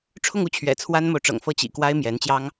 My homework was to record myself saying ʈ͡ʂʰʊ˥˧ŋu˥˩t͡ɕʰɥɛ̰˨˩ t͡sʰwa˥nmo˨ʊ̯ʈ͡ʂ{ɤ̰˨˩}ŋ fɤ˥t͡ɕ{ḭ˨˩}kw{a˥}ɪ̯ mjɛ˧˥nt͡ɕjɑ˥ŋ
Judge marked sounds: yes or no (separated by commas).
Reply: yes, yes, yes